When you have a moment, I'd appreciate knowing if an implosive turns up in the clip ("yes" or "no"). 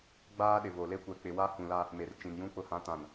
yes